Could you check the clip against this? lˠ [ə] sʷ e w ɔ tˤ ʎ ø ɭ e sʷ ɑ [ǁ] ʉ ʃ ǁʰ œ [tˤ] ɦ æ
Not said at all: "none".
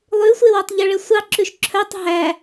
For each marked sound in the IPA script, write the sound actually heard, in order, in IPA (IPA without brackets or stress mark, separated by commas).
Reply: ʉ, ǁ, tˤ